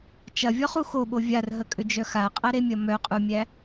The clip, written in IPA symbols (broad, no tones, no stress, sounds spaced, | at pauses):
t͡ʃ ɐ vʲ ɔ χ u x o ɓ o vʲ a r ɦ ə kʼ ʏ d͡ʒ œ x a qʼ ɐ ɾ e mʲ ɐ m œ qʼ u mʲ æ